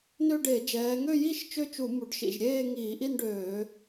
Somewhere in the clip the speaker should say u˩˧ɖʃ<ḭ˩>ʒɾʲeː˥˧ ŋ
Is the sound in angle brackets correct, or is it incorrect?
correct